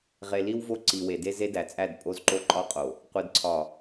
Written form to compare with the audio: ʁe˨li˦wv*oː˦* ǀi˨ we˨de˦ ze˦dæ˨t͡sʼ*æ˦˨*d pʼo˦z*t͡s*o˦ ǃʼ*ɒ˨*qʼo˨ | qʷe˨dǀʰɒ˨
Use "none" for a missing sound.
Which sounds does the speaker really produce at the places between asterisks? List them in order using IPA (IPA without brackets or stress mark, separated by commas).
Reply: o˦, æ˦˨, ǃ, ɒ˦